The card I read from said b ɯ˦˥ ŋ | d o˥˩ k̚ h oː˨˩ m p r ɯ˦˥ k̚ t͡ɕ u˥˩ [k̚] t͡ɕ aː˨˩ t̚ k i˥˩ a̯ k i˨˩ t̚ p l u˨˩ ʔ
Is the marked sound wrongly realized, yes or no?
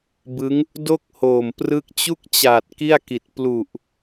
no